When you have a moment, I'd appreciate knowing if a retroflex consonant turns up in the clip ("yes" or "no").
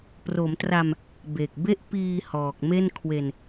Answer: no